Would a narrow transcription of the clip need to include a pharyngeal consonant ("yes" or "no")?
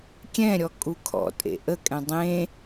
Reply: no